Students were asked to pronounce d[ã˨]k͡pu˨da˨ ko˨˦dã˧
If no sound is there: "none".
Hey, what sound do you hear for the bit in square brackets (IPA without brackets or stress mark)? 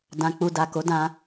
ã˨